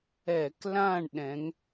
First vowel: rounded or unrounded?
unrounded